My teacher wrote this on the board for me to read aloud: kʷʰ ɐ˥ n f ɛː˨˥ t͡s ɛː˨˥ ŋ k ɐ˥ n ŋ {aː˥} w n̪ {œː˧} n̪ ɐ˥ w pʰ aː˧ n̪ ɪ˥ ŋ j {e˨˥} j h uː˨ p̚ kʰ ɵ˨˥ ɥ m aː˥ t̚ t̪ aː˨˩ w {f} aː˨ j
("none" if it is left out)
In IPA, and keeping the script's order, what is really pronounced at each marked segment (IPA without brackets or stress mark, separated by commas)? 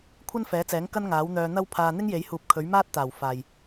aː˨˥, œː˧, e˨˥, f